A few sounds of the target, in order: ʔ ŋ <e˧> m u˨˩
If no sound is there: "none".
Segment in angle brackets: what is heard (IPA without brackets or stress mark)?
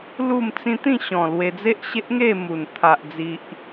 e˥˧